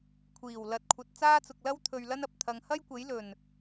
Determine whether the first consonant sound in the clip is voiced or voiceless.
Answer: voiceless